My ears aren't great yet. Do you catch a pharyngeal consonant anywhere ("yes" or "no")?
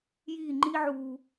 yes